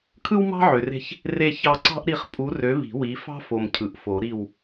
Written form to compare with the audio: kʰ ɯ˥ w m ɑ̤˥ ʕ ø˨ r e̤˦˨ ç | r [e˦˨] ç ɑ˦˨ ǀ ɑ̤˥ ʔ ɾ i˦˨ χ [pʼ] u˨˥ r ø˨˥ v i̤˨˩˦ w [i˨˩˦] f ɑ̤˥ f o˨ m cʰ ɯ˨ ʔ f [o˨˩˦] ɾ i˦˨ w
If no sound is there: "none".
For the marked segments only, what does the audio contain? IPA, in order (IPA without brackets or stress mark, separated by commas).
e˦˨, pʼ, i˨˥, o˨˩˦